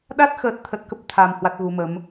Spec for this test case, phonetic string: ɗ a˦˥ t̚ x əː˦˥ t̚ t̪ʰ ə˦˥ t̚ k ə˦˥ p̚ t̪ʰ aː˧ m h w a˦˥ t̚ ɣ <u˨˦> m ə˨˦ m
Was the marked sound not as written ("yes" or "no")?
no